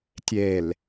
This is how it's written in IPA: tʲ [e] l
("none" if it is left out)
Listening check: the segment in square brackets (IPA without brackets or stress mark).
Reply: e